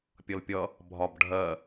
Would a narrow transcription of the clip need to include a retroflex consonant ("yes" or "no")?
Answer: yes